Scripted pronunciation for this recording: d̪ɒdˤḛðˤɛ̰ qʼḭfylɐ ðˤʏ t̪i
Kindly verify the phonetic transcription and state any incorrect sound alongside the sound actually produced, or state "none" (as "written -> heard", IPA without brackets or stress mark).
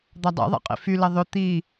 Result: none